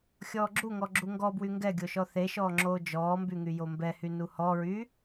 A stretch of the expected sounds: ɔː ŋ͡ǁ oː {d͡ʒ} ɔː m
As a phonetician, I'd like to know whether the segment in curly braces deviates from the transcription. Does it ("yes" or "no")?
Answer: no